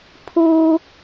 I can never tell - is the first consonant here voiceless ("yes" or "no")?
yes